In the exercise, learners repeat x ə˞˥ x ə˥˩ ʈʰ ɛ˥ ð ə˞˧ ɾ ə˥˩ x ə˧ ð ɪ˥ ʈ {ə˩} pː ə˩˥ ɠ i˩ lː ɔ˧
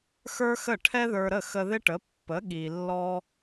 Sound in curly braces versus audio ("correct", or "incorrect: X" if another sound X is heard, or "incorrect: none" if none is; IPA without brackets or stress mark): incorrect: ə˩˥